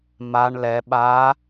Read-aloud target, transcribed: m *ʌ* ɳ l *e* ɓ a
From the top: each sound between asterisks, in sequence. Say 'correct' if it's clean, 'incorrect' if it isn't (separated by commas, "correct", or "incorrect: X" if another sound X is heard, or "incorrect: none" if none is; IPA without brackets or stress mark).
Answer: incorrect: a, incorrect: ɛ